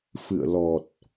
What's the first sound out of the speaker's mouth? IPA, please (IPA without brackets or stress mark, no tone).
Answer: f